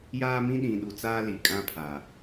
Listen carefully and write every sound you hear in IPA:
j aː˦ m ĩ˦ ɗ ĩ˨ ɗ u˨ t͡s aː˦ l i˨ kʼ ã˦ pʰ a˨

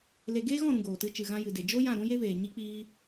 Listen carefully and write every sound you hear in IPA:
l e˧ ɡ eː˦ ɣ ɔ̃˦˨ ɾ ũ˨ ɡ oː˨ t ɨ˧ t͡ʃ ɨ˨ ɣ ã˧ j ɨ˨ d e˨ d͡ʒ o˦ j ã˦˨ ɾ ũ˦ j e˦ v eː˨ ɲ i˦ k͡p iː˦

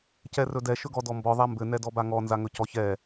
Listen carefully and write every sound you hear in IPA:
c ɛ r ɵ d ɛ ʃ ɵ ɡ ɔ d ɔ m b ɔ ðˤ a m b ɘ n ɛ d ɔ b a ŋ ɔ n z a ŋ ɵ c ɔ ç ɛ

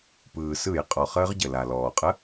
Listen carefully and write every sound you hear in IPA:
p ɯː˩ s ɯ˧˩˧ j qʼ ɔ˩ χ əː˦˥ ʁ ɟ ə˩ l a˩ l ɔː˩ qʼ ə˧˥˧

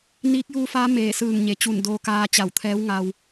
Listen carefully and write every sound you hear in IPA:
n iː˧˥ k̚ j uː˧˥ f aː˧˥ m eː˧˩ s ɯː˧˩ ŋ ɲ e˩˧ t͡ɕ u˧˩ n d oː˧ k aː˧ t͡ɕ a˧˩ w t̪ʰ ɛː˧˥ w ŋ a˧ w

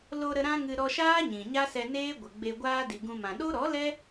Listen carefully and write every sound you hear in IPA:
l o˧ ɾ ə˧ ɾ ã˦ ŋ ɨ˧ ɾ ɔ˧ ʃ aː˦ ɲ ĩ˨ ɲ a˦ s ɛ˧ n eː˦ ɡʷ ə˨ ɡ͡b e˧ ɡʷ aː˦ d i˨ ɡ ũ˧ m ã˨ ɗ o˦ ɾ ɔ˨˦ l ɛ˦

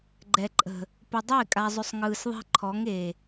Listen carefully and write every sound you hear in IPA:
ɡ͡ǃ ɛ˨ ǃʼ ə̤˨ | p ɪ˨ dˤ ɪː˦˨ kʼ a˨ zˤ ʏ˨ sˤ ŋ ɯː˨ s ðˤ e̤˦ ǃʰ ɔ˨˦ ŋ e˨

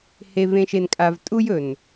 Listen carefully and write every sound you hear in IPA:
h e˨ v ẽ˨ ʃ e˨ n kʼ a˨ v tʼ u˦ j ɵ˨ n

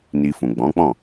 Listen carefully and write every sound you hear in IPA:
n i˧ f ũ˨ ɡ͡b ɔ̃˨˦ k͡p ɔ̃˦˨

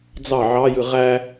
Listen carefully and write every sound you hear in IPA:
d͡z ɑ ʕ ɑ j ɯ ʁ æ

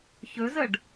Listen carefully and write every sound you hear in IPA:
ç ɵ z ə ɖ

